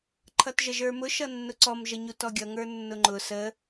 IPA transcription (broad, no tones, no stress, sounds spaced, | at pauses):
ǃʰ ʌ t ʒ ə ʒ ə˞ m ʊ ʃ ʌ nː ʊ ǀ ɔ m ʒ ə ɲ u t ɔ ɡʲ ʌ ŋ ə˞ nː ʊ ŋ͡ǃ ʊ s ə